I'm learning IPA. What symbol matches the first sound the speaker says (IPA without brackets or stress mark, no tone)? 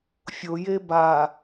fʲ